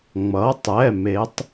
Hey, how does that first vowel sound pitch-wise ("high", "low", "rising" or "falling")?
rising